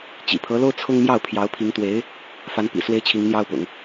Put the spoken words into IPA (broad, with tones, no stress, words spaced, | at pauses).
t͡ɕḭ˨˩pʰɤ˧˥lo˥ʊ̯ t͡sʰʊ˥ŋ mjɑ˥˩ʊ̯pʰjɑ˧˥ʊ̯pʰi˧˥ŋ t̪we˧˥ɪ̯ | fa˧˥n pḭ˨˩swe˥ɪ̯ t͡ɕʰi˧˥ŋn̪jɑ˥ʊ̯pʊ̰˨˩˦ŋ